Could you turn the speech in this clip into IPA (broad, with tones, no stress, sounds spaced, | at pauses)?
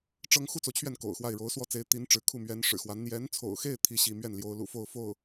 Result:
ʈ͡ʂ ɤ˥ ŋ x u˥ t͡s o˨ ʊ̯ t͡ɕʰ ɥ ɛ˥˩ n k o̰˨˩ ʊ̯ x w a˥˩ ɪ̯ ɻ o˧˥ ʊ̯ s w ɔ˥ t͡s e˧˥ ɪ̯ t̪ i˧˥ n ʈ͡ʂ ɻ̩˧˥ kʰ u˥˩ m ɥ ɛ˧˥ n ʂ ɻ̩˨˩ x w a˧˥ n n̪ j ɛ˧˥ n t͡sʰ o̰˨˩ ʊ̯ x e˥˩ ɪ̯ t̪ʰ i˥ ɕ i˥˧ m ɥ ɛ˥˩ n l j o˧˥ ʊ̯ l ṵ˨˩ f o˥˧ ʊ̯ f o˥˩ ʊ̯